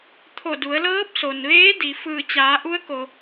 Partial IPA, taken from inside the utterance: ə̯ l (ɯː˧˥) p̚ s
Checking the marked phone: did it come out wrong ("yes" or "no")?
yes